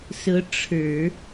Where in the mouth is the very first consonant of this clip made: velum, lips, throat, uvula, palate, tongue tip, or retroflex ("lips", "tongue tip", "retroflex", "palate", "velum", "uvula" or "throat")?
tongue tip